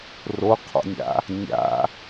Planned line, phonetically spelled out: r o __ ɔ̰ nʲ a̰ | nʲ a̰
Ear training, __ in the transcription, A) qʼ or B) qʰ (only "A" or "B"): B